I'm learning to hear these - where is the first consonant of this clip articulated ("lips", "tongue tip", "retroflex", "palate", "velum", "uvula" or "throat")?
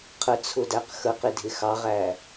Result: uvula